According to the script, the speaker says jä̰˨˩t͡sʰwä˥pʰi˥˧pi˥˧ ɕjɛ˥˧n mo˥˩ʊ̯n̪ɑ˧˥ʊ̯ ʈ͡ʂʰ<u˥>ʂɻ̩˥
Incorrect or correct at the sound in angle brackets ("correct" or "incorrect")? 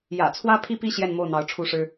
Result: correct